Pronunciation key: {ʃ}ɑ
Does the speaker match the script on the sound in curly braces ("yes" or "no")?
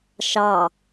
yes